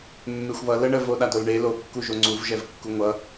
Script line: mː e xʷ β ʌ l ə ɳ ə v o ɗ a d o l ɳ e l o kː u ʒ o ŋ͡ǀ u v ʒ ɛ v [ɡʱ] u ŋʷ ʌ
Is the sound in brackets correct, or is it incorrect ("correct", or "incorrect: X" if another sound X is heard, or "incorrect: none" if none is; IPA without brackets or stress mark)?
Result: incorrect: kː